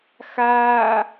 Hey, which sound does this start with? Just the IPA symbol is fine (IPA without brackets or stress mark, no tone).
x